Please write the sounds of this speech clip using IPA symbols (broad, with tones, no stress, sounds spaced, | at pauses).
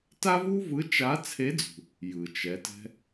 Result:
t a˥ v u˥ v ɯ˧˥ t͡ʃ a˧˥ t͡sʰ e˧˥ d͡z ṳ˩ | j ɯ˩ t͡ʃ ɛ˩˧ t ɛ̤˧